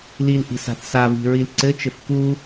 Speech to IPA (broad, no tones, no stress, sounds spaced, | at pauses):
l i l ʔ i̤ s a̤ θ s a v i̤ ɹ i l ǀ ɘ t͡ʃ ɘ f k u